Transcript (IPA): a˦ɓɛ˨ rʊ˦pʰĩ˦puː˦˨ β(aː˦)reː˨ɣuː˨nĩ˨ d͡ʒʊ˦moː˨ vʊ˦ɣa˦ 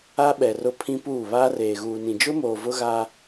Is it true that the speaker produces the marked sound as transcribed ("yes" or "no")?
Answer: yes